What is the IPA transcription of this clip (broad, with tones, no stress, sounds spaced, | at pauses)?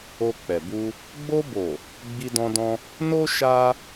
o˧ k͡p ɛ˨ b u˧ | ɡ͡b o˧ b o˨ | ɡ͡b i˧ d ɔ̃˧ d ɔ̃˧ | n o˦ ʃ a˦